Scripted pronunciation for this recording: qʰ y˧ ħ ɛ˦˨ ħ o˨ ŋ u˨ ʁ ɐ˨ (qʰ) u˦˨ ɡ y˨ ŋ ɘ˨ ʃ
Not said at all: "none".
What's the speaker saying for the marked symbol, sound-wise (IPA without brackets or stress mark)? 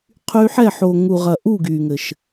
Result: ʔ